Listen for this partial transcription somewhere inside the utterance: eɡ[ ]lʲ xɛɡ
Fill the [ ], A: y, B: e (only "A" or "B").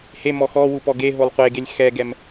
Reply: B